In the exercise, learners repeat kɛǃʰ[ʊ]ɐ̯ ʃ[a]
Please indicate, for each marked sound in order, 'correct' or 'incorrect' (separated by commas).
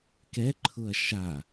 correct, correct